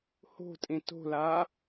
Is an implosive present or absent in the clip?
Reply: absent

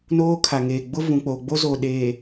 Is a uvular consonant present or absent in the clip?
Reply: absent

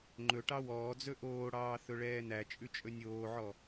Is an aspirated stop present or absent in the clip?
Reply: absent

